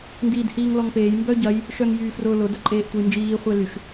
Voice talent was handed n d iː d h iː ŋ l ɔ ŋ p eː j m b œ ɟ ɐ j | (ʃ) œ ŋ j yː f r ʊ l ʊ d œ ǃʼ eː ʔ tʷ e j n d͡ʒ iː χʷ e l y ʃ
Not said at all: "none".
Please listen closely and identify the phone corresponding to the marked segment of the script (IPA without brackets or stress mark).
ʃ